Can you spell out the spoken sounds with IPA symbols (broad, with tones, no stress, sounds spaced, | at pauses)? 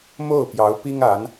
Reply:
m o˥˩ ʊ̯ p j ɑ˧˥ ʊ̯ p i˥ ŋ a˧˥ n